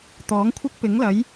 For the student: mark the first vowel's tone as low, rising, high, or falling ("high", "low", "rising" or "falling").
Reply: rising